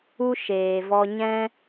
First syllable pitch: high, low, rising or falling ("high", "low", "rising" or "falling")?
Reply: high